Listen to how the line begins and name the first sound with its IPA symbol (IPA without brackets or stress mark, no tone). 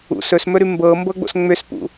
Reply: ṵ